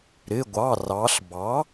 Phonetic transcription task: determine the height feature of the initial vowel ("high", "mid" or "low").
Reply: high